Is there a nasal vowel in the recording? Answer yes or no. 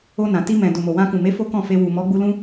yes